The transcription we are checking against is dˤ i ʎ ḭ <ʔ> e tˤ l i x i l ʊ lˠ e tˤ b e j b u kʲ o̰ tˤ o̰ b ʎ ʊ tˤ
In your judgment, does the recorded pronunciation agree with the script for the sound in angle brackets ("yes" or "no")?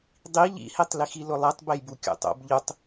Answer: no